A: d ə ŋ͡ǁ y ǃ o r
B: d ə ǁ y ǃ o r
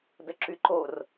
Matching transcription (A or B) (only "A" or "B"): B